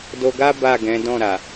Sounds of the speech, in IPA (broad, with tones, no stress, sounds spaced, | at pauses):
d o˧ ɡ a˦ b a˦˨ ɡ ɛ̃˨˦ d ɔ̃˦˨ ɾ a˨